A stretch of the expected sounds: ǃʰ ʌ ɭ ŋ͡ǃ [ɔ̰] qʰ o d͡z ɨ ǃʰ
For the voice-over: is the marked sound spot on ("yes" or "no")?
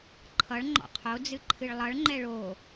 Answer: yes